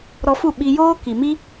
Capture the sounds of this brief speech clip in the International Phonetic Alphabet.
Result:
ɾ ɔ˧ f u˦˨ ɓ i˧ j oː˦ k i˨ m i˦

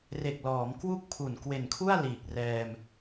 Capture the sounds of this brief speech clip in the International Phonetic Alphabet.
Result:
r e˨˩ k̚ l ɔː˩˦ m k w u˥˩ k̚ pʰ u˨˩ n k w e˨˩ n kʰ u˥˩ a̯ l iː˨˩ k̚ r ɛː˧ m

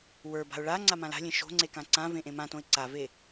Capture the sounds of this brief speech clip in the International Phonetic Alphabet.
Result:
w ə˞ b a̤ ʊ̯ ɭ a ŋ͡ǀ a m ã l a̤ lʲ ẽ ʃ o̤ ŋ͡ǀ e k ã ǀ ã v ẽ ʔ ẽ m ã t õ ɪ̯ ǀ a v e

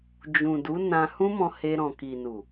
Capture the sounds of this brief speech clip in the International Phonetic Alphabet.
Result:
d͡ʒ ũ˨ d u˨˦ n ã˧ h ũ˦ m ɔ̃˧ h e˧ ɾ ɔ̃˨ k i˨ n u˨

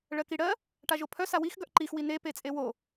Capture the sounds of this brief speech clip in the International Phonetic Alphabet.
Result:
ɭ ɜ k i ɽ ɜ | ʈ a ʒ o pʰ œ s a w i x ɡ œ ʔ ǃ i x w i n e p e t͡sʼ e w o

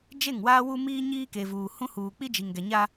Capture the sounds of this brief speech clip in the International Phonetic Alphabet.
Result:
d͡ʒ e˦˨ ŋ w aː˦ w u˦ m iː˦ ɲ iː˦ k e˨ v uː˨ h ũ˦ h uː˨ k͡p i˦ d͡ʒ i˨ ŋ ɡ ɛ˨ ɲ a˦

